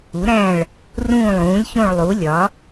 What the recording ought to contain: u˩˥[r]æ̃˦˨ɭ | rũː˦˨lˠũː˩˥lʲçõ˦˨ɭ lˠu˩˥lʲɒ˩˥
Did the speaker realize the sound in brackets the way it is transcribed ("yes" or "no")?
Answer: no